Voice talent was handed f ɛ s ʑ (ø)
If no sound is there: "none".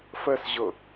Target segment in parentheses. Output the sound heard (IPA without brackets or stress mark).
ə